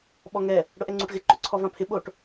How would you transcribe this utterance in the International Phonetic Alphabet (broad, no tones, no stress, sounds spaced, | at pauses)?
ɓ ɔ ŋ ɛ | ɽ ʊ ʔ ɛ ŋ͡ǀ u ʈ ɣ ɪ ǃ ʊ ǀʰ ɔ v ã pʰ ɪ ɓ o ʈ